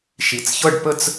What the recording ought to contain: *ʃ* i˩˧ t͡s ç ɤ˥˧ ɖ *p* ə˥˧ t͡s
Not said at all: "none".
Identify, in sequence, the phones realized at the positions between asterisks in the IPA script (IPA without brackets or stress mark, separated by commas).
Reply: ʃ, p